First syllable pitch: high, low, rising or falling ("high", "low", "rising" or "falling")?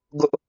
high